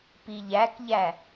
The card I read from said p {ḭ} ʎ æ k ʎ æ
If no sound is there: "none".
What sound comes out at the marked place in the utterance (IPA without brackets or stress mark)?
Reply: i